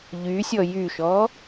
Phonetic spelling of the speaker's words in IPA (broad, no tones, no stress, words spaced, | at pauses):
ʎysʲɔ jyʃɔ